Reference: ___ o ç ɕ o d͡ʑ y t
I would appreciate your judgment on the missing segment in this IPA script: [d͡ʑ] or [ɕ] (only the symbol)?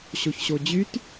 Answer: ɕ